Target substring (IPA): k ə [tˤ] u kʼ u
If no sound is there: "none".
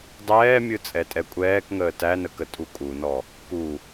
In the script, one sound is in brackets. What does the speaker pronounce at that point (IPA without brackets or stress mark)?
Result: tʼ